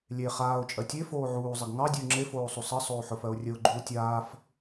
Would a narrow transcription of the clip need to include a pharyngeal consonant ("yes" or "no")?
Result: yes